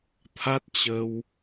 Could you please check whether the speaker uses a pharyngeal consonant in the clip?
no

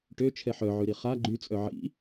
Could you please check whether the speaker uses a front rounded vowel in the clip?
yes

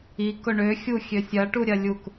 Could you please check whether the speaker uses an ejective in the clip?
no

